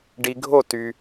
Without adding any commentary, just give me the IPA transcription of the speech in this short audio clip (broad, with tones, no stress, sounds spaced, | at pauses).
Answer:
ɖ i˧ ɡʱ o˥˧ t y˧